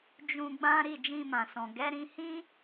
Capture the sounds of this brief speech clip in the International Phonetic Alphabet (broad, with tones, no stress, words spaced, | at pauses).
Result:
d͡ʒũ˧ɡ͡bã˦ ɾi˦˨d͡ʒĩ˧mã˨sɔ̃˨ ɡɛ˨˦ɾĩ˧hĩ˦